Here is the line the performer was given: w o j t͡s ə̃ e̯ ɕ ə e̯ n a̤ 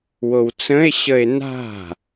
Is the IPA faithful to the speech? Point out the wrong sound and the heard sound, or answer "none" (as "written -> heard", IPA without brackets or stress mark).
j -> w